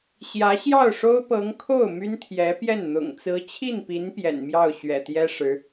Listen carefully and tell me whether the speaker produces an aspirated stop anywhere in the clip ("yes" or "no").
yes